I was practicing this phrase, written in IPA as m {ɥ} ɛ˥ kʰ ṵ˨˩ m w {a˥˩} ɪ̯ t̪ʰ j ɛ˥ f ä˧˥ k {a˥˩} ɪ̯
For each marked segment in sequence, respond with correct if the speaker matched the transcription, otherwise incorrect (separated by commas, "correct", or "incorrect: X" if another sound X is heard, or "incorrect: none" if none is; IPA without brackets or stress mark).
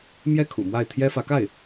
incorrect: j, correct, correct